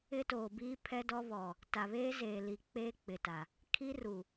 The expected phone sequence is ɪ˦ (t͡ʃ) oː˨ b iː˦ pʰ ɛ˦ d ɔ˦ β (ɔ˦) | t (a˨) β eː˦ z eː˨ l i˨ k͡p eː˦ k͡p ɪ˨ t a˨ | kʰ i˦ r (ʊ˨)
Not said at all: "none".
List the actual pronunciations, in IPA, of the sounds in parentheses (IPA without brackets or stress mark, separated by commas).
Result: t, ɔ˨, a˨, u˨